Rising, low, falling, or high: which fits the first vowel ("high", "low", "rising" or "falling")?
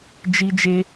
high